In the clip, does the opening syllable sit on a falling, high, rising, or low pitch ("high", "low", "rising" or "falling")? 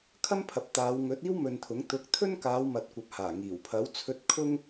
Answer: high